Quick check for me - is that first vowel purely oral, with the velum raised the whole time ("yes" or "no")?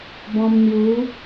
no